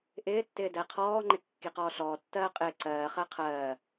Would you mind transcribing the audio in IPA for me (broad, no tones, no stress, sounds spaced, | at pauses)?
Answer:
ʔ ɪː tː ɪː d ɛ qʰ ɔː ŋ͡ǃ ɪ kː i q ɔː ɬ ɔː tː ɜː qʼ ɪː ǀ ɜː χ ɜ qʰ ɜː